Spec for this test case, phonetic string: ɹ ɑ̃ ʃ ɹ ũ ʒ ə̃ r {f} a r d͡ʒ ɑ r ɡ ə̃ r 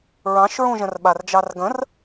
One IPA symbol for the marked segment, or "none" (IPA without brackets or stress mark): ɓ